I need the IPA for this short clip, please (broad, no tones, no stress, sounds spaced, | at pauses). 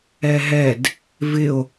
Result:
ɛ ɦ ɛ d | v ɪ o̯